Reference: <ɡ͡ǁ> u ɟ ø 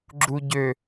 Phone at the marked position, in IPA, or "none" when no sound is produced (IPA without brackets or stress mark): ɡ͡ǁ